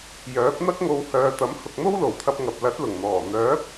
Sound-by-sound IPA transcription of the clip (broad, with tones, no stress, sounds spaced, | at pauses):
j œː˨˥ p̚ n̪ ɐ˥ k̚ ŋ o˧ w h œː˨ t̪ ɐ˨˥ m h ʊ˨ k̚ n̪ o˥ w l o˨˩ w t̪ʰ ɐ˧ p̚ ŋ ɐ˨ p̚ l ɐ˨˥ t̚ l ʊ˨˩ ŋ n̪ ɔː˨˩ n̪ œː˨˥ p̚